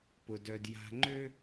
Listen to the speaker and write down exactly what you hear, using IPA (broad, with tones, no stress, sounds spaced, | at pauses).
p ʊ˨ d œ˨ d j a̤˨ ŋ͡ǃ ø˦